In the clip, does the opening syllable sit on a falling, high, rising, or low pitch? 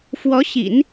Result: rising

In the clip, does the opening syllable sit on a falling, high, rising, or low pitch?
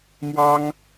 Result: high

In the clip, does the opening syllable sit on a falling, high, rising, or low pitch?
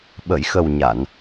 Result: low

